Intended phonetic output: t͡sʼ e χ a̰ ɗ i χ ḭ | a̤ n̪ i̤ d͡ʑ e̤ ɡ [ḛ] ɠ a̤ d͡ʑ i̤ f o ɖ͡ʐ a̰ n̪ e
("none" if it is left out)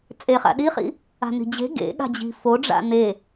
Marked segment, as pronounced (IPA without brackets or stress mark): ḛ